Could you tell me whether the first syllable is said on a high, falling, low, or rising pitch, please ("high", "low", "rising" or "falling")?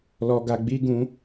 low